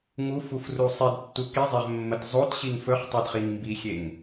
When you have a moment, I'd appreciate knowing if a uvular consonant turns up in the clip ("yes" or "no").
yes